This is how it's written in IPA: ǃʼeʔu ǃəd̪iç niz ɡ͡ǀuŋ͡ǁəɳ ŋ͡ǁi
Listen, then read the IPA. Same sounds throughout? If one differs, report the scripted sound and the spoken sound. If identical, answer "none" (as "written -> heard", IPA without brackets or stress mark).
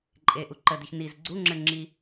none